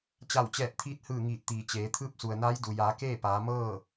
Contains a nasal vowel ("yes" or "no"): no